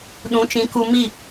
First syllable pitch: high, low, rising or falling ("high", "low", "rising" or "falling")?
rising